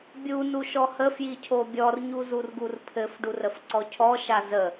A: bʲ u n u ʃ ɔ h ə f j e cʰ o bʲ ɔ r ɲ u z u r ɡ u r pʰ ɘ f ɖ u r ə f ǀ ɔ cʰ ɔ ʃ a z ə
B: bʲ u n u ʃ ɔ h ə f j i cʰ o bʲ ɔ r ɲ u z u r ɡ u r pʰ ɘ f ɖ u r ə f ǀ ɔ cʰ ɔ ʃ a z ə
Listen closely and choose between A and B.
B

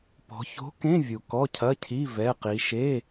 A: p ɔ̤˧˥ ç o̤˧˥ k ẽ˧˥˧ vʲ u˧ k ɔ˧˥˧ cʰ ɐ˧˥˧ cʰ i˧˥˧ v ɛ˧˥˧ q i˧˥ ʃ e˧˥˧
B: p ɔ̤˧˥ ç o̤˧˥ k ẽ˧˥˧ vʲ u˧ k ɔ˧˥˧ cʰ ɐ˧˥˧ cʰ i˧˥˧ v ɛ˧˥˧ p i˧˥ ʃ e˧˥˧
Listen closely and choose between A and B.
A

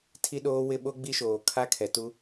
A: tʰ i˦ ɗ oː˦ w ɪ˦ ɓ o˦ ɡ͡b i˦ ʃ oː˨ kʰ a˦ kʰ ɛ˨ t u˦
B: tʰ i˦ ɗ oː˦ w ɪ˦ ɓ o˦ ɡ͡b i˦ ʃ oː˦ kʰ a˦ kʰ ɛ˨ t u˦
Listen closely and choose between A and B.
A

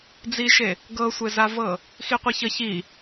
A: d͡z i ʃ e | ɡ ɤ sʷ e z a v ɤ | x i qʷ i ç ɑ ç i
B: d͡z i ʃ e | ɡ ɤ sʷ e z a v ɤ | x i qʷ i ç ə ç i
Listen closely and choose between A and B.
B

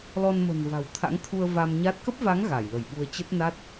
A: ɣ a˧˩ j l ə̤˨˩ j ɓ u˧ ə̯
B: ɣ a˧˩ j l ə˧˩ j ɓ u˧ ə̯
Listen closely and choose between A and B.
B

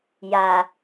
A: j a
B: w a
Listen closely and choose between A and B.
A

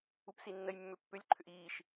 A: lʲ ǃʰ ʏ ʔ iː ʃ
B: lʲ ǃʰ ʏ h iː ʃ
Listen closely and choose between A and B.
A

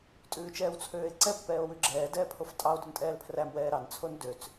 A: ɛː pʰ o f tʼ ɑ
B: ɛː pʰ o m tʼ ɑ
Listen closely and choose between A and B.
A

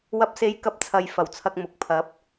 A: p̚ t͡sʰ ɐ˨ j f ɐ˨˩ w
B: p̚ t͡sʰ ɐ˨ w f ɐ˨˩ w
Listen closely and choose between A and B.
A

